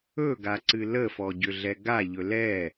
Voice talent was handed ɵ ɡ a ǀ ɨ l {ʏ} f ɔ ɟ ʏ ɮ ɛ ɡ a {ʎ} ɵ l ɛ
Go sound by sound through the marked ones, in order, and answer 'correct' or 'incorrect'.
incorrect, correct

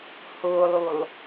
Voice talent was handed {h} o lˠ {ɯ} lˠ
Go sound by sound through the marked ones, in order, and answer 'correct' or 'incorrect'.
correct, incorrect

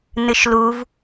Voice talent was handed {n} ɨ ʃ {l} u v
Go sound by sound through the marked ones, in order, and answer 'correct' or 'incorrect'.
correct, correct

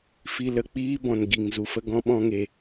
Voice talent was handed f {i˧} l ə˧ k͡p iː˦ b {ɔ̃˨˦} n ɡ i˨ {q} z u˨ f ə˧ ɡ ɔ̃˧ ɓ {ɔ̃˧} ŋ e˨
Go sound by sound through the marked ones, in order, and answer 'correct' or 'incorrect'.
correct, incorrect, incorrect, correct

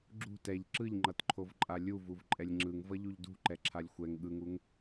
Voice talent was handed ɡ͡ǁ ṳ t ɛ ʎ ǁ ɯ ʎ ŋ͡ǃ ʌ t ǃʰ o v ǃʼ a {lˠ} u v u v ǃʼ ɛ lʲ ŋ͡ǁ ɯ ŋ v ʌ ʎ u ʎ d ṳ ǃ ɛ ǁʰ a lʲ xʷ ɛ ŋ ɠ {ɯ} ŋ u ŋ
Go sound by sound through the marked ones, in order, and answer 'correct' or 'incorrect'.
incorrect, correct

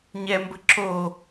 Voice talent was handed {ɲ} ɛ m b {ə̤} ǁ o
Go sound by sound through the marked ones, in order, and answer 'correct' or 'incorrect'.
correct, correct

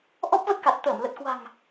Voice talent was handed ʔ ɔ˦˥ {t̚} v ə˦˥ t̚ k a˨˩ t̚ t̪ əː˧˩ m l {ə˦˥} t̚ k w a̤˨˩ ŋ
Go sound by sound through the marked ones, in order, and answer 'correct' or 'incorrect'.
incorrect, incorrect

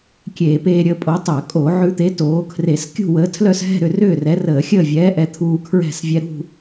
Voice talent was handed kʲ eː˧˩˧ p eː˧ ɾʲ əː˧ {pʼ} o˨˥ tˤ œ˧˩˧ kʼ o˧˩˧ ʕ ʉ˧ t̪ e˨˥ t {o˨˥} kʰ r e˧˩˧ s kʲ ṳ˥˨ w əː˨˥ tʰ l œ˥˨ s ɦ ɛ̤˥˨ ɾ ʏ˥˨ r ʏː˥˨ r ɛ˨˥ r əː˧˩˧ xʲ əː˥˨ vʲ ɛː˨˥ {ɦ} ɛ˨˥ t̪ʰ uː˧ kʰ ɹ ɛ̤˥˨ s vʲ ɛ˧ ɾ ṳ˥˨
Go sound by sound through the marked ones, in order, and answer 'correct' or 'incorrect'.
correct, incorrect, incorrect

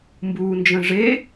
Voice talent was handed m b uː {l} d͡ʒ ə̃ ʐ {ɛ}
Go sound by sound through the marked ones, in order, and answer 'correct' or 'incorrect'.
incorrect, incorrect

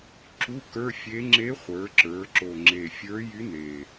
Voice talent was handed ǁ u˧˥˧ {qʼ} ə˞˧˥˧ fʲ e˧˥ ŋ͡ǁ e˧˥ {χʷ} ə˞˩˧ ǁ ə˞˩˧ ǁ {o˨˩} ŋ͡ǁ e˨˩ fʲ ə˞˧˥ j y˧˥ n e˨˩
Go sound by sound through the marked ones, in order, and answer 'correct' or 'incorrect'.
incorrect, correct, correct

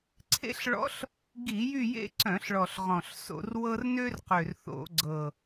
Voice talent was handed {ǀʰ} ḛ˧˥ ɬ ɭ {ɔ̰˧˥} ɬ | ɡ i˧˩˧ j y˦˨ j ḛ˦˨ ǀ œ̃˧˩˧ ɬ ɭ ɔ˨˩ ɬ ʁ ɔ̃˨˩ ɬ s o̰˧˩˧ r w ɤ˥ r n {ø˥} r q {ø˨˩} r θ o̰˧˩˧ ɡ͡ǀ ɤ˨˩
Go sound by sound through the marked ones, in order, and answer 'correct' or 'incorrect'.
correct, correct, correct, correct

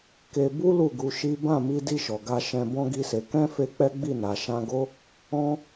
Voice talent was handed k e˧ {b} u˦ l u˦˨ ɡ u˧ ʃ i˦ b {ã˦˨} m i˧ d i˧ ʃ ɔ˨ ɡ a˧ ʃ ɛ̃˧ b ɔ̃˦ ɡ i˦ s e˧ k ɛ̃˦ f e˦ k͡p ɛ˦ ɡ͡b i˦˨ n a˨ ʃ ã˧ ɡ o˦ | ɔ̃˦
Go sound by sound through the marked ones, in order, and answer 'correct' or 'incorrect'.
correct, correct

